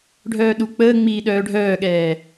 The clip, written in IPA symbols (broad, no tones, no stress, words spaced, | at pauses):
ɖʱœːɗu k͡pəːŋ͡miː ɗœːɖʱœːɠɛː